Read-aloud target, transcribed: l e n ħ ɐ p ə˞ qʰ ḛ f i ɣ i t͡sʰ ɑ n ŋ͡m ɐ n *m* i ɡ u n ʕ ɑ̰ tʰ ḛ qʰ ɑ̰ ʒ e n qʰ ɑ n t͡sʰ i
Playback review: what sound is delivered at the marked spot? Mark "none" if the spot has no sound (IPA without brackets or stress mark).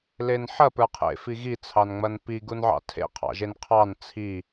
p